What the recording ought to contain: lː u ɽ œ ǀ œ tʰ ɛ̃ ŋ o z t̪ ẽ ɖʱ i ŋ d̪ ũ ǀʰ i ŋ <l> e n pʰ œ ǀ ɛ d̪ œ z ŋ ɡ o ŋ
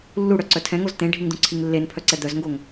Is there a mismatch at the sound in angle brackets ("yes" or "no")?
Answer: yes